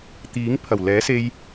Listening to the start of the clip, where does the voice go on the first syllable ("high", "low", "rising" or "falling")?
rising